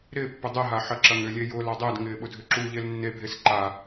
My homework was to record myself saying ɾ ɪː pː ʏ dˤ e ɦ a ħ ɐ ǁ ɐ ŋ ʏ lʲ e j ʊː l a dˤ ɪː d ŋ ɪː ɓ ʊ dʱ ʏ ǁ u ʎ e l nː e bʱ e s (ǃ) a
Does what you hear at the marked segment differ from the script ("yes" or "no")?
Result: no